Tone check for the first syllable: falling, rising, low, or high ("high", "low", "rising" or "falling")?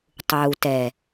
low